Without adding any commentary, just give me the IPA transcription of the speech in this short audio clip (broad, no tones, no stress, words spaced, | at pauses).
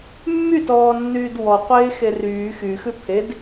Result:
mːytɔːnːyːd wɔqʷeːxe ryː xyxʉ pʰed